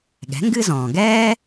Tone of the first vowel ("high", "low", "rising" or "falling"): rising